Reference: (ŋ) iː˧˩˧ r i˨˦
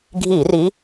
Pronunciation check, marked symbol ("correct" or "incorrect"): incorrect